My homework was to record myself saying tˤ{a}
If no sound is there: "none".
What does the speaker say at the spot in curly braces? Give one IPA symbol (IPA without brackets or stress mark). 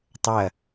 ɐ